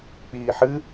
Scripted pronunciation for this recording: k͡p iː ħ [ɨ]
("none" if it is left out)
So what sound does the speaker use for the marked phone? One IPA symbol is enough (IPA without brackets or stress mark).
ɨ